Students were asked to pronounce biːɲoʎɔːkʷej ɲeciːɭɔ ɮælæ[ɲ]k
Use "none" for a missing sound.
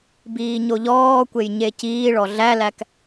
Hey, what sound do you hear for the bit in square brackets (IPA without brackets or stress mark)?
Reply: none